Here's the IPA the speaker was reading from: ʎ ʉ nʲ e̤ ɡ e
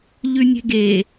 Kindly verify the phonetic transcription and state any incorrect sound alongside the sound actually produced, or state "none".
none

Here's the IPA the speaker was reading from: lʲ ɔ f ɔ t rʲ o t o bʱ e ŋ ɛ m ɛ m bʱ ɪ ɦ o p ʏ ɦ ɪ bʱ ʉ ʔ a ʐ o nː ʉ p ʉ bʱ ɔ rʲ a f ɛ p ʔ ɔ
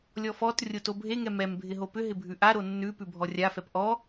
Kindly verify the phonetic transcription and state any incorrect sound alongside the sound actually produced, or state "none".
ʐ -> ɾ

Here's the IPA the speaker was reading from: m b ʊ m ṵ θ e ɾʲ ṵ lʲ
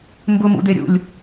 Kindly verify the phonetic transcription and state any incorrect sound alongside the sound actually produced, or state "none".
θ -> d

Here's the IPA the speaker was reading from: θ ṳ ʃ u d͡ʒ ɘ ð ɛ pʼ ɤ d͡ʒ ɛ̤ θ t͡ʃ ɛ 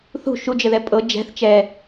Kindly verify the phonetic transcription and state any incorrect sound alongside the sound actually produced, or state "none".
none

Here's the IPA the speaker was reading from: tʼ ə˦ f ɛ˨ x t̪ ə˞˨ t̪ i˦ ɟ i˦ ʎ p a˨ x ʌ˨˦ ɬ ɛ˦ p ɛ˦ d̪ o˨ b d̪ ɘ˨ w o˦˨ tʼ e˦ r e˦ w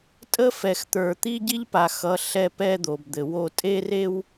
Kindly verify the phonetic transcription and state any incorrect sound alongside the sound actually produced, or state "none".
none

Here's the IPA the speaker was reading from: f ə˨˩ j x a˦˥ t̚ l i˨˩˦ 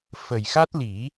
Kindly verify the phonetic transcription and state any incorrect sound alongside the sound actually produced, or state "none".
none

